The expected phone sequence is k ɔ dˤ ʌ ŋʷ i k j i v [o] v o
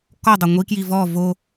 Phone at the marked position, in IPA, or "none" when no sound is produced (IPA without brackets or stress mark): ɔ